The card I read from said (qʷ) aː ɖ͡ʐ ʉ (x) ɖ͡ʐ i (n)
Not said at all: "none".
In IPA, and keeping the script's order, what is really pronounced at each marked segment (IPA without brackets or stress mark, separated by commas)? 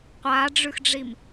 qʷ, x, m